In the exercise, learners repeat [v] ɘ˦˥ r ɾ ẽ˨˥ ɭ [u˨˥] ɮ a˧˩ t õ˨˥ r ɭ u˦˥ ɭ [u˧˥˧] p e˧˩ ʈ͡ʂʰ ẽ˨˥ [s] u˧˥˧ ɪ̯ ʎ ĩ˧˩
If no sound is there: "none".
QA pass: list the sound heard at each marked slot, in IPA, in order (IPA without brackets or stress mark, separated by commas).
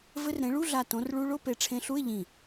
v, u˧˥˧, o˧˥˧, ɬ